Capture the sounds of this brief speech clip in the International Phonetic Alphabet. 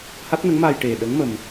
h a˦˥ t̚ n ə˧˥ ŋ m aː˧ j ʈ e˨˩ ɗ ə˧˥ ŋ m ə˧ m

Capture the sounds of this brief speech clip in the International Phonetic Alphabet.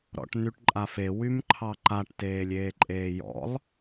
ɾ ɔ̰ ʈ n y ʈ ǃʼ a f e w y m ǃʰ ɑ ǃ a ʈ t eː lʲ eː ǃʼ eː j ɔ̰ lˠ

